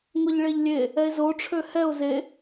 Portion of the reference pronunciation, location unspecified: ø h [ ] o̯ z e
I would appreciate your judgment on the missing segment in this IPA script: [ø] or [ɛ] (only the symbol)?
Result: ɛ